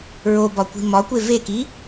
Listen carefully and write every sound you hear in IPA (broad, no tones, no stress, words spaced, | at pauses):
ɹobɒkʷi̤ mɒkʷe veki